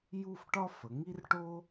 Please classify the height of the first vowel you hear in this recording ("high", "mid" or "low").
high